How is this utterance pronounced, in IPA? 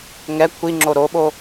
ŋ ɛ kʷʰ i ŋ͡ǁ o ɾ o ɓ o

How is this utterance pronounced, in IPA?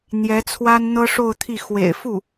n̪ j ɛ˧˥ t͡sʰ w a˥ n n̪ ɤ˥ ʂ o˥˧ ʊ̯ t̪ʰ i˥˩ x w ḛ˨˩ ɪ̯ f u˥˩

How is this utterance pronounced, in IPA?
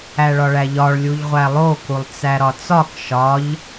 æ ɭ ɒ ɭ æ ʎ ɒ ɭ lʲ u ʎ ʁʷ æ lˠ o k u lˠ t͡s æ ɾ ɒ t͡s ɒ k ʃ ɒ ʎ

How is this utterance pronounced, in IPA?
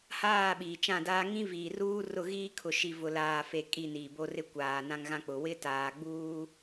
h aː˦˨ ɓ iː˨ t͡ʃ ã˦˨ d aː˦ ŋ ĩ˦ v iː˨ r uː˦ r ʊ˦˨ ɣ iː˦ kʰ ʊ˨ ʃ i˨ v ʊ˨ l aː˨ f e˨ kʼ i˦˨ n iː˨ b o˦ r ɪ˦ kʷ aː˨ n ã˦ ŋ ɣ ã˦ k͡p ʊ˨ w ɪ˦ t aː˨ ɡ͡b uː˦

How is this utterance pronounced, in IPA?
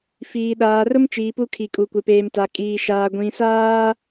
f iː˨ ɗ aː˨ r ʊ˦ m t͡ʃ iː˨ p u˦ kʰ i˨ kʼ u˨ kʷ ɪ˨ p eː˨ m t a˨ kʼ iː˨ ʃ aː˨ ɡʷ ĩ˨ s aː˦

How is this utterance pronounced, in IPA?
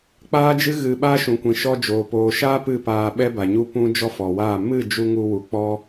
k͡p aː˦ d͡ʒ ɨ˦ ɣ ɨ˧ ɓ a˦ ʃ ũ˨ kʷ ĩ˨ ʃ ɔ˧ d͡ʒ oː˨ p oː˨ ʃ aː˦ p ɨ˦˨ p aː˧ ɓ ɛ˦ b a˨ ɲ u˦ p ũ˦ d͡ʒ ɔ˦ f ɔ˨ w aː˦˨ m ɨ˦˨ d͡ʒ u˧ ŋ u˧ w u˨ k͡p ɔ˦

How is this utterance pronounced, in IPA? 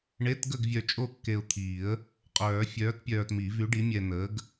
ɳ e˧˥˧ t ɡ ə˥˨ ɡ vʲ œ˧ t͡ʃʼ o˥˨ kː e˧ ʊ̯ t̪ʰ iː˨˩˦ ə̯ | qʼ œː˨˩˦ fʲ œː˨˥ t pʲ œː˧ t m i˨˩˦ v y˨˥ ɖ i˨˥ mʲ ɛ˧ n əː˨˥ ɡ

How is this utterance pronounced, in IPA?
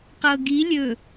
q ɤ ɡ i lʲ ɵ

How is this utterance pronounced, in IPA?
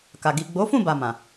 k a˨ ɡ i˨ ɡ͡b o˨˦ f ũ˦˨ b a˨ m ã˨

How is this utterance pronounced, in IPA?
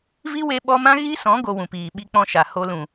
v i˦ w e˧ ɓ ɔ˧ m ã˦ ɣ i˦ s ɔ̃˨˦ ɡ o˧ w ũ˨ p iː˨ ɓ i˦ k͡p ɔ̃˦ ʃ a˨ h o˦ l ũ˨

